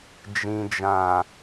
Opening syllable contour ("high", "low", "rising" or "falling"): low